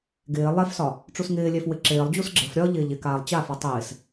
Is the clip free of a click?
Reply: no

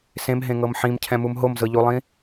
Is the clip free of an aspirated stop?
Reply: no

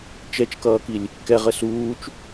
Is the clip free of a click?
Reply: yes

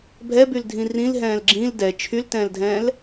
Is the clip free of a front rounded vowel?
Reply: no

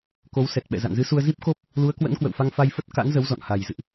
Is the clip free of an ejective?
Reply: yes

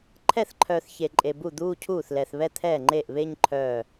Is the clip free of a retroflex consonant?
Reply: yes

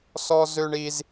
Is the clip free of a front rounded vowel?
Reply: no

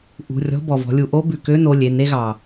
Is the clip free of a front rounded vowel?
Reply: no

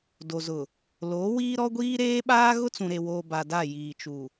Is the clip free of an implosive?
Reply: no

